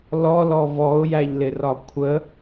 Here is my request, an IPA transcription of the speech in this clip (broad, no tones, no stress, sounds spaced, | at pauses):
l ɔ l ɔ v ɔ ʊ̯ j æ ʎ l ɪ r ɒ kʷʰ ə